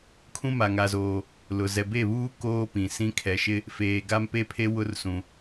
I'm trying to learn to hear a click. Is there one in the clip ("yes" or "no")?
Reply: no